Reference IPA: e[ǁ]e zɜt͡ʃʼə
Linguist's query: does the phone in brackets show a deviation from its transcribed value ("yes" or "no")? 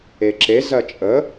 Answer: no